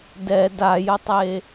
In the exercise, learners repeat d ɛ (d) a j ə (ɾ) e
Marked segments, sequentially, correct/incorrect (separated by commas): correct, incorrect